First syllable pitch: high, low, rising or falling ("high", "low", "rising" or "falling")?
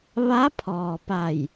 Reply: rising